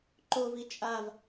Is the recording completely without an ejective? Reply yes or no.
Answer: no